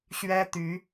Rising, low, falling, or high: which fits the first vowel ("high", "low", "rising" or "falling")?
high